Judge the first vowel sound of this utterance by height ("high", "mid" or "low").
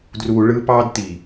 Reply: high